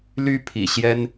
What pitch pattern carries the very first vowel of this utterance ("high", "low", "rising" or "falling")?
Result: high